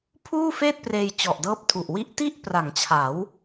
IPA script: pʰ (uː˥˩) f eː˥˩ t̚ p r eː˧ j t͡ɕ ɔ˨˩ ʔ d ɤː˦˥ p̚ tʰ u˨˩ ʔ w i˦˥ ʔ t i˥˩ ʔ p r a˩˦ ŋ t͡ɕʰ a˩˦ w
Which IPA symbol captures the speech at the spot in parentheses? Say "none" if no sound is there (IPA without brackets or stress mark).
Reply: uː˥˩